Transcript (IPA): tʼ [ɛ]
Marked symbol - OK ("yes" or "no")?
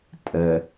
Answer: yes